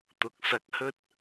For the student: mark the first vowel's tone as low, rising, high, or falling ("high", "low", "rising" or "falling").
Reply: rising